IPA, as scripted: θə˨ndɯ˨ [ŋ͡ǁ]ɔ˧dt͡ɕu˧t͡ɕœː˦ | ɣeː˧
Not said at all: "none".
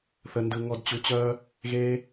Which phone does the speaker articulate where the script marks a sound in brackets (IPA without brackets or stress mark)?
ŋ